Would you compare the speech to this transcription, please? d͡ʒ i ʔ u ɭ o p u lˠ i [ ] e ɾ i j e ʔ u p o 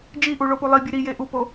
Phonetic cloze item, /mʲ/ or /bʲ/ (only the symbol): bʲ